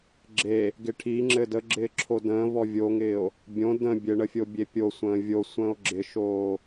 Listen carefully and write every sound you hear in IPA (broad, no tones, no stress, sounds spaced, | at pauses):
ɡ͡ǁ e | ɡ ɪ ʈʰ i ŋ͡ǁ ɘ d ə ɡ͡ǁ ɪː ǁʰ o d ə̃ː v ɔ vʲ o ŋ ɪː o̯ | bʲ õ d ə̃ bʲ ɘ ɳ ə fʲ o bʲ e pʲ o sʷ ə̃ː vʲ o sʷ ə̃ː o̯ ɡ͡ǁ ɪ ʃ oː